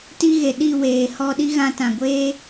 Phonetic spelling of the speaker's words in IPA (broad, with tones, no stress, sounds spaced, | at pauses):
t i˧ ɣ e˨ ɗ i˦˨ w eː˨ h ɔ˧ ɗ i˦ ɣ ã˧ t ã˨ ɡʷ eː˦